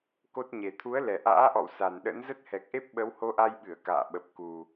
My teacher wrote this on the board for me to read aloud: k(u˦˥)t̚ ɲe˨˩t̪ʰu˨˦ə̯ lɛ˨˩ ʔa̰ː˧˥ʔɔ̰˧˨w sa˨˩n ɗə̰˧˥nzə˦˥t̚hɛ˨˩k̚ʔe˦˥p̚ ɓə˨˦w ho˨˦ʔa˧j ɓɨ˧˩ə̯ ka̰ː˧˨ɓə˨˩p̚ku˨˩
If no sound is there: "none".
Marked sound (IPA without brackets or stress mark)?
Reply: o˦˥